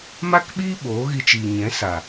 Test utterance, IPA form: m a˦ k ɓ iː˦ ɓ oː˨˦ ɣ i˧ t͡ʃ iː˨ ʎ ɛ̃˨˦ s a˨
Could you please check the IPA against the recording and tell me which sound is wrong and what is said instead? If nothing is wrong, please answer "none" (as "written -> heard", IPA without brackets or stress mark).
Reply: ʎ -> ɲ